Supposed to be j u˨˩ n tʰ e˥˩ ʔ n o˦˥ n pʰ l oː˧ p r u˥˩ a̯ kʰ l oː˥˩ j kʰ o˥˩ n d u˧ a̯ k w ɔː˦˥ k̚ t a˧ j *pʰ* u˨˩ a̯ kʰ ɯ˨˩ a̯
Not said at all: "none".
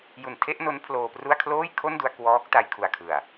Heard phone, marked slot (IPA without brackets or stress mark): kʰ